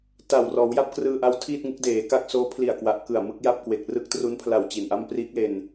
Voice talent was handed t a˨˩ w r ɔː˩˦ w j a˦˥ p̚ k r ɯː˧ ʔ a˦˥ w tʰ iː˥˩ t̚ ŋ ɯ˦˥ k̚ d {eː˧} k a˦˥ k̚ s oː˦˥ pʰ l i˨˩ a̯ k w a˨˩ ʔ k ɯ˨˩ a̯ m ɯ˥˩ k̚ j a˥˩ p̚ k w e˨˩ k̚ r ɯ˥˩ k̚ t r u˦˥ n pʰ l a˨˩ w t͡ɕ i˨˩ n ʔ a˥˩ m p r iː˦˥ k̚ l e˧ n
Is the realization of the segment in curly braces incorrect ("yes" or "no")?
yes